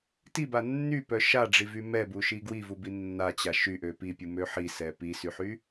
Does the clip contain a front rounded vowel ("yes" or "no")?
yes